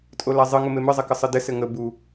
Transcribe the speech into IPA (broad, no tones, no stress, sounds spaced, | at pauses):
tʼ o l a zˤ ɨ ŋ ʊ m e m ɨ zˤ ɘ k ə sˤ ɨ d ɘ s ɘ ŋ ə b u